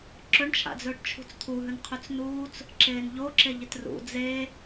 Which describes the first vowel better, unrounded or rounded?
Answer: rounded